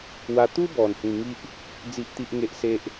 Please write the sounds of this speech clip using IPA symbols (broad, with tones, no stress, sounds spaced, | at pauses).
w a˧ t̪ u˦ b ɔ˨˩ n h ĩ˨˩ ŋ i˦ ʔ | d͡z i˦ ʔ t̪ i˦ ʔ ŋ e˦ ʔ s e˦ ʔ